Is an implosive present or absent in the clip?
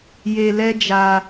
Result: absent